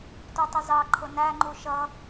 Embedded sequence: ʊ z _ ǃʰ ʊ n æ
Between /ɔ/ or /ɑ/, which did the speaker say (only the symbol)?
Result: ɑ